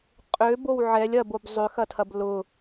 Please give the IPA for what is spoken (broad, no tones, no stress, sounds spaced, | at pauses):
qʼ ø b o w ʕ ɛ lʲ ɐ b o b zˤ ø x ɐ tʰ ɐ b l ʊ